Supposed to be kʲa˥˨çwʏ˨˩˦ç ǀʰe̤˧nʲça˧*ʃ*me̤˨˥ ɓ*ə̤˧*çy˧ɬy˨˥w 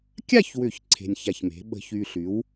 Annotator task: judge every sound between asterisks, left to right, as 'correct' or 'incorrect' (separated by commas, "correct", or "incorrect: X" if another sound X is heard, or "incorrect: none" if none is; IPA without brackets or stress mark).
incorrect: ç, correct